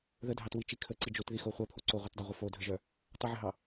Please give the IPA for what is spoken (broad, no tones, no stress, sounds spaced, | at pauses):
ð ə dʱ ɑ t w i t͡ʃ i kʰ ə ǀ i d͡ʒ o t ð i x o χʷ œ pʰ o ǀ o ʁʷ œ t dˤ ɑ ʁʷ ə f o dʱ ə ʒ œ | tˤ ə ʕ ə ɦ ɑ